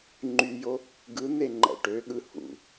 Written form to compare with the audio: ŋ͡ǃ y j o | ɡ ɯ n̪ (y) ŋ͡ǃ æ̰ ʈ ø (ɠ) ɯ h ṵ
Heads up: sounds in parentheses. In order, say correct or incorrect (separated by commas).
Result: incorrect, correct